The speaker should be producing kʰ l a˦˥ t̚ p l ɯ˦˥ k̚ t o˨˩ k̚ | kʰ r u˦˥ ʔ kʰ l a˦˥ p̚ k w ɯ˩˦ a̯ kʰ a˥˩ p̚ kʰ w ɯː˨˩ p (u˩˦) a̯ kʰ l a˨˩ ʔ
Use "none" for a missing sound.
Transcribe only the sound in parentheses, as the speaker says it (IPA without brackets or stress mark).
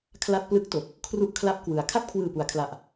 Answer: u˩˦